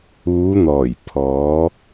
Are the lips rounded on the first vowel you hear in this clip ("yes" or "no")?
yes